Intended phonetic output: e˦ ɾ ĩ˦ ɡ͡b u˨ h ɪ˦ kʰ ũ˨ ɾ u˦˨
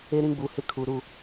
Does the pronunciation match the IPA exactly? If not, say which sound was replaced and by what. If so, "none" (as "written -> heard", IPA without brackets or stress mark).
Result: ũ˨ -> u˨